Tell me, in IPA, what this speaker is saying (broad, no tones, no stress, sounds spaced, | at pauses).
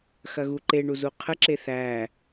x ɐ ɣ u ǃ e ɳ u z u qʰ ə ǁ e θ æ